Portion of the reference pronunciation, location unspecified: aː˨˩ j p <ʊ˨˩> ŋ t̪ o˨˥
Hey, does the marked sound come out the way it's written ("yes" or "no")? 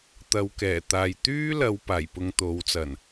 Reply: no